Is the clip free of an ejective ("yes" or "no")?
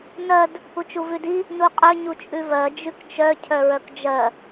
no